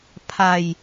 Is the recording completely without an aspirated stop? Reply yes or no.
no